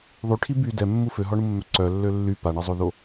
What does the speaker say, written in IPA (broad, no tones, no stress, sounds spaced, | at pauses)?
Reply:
ðˤ y ʈʰ i b y d ɛ mː u f ø ɦ ɔ ɳ u mː œ ǀ œ lː ø lː y p a ɳ ɛ zˤ o ð o